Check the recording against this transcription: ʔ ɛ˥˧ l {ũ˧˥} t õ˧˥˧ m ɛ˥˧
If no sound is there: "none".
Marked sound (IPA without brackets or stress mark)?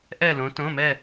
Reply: õ˧˥